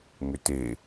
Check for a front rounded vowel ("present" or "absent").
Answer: present